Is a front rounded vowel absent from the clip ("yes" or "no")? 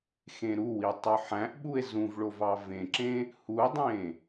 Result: no